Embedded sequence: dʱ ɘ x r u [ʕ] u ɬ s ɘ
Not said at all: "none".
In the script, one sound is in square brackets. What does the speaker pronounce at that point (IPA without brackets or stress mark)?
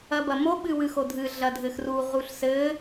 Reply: ʁ